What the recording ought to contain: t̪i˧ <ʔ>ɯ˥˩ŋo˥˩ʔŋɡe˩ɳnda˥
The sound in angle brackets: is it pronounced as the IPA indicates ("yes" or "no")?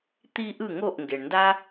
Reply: yes